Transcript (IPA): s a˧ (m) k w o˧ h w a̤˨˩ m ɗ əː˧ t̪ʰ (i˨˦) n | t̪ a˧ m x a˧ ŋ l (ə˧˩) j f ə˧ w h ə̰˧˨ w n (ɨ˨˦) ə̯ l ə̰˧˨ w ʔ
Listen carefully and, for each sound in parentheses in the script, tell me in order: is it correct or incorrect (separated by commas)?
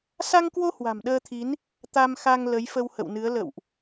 incorrect, correct, incorrect, correct